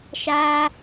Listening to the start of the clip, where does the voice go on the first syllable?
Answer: high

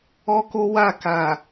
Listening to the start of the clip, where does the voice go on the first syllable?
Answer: high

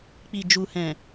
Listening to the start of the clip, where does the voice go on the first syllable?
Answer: low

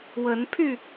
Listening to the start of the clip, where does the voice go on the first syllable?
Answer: rising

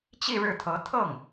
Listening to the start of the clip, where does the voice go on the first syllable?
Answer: falling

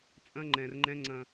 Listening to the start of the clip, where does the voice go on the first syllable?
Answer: high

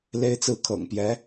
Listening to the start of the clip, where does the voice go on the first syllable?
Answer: high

